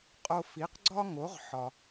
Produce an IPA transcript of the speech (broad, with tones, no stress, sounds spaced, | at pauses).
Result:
qʼ o˧ f i˩˥ q ɡ͡ǀ ɒ˥ ŋ o˩˥ ʁ ħ ɒ˩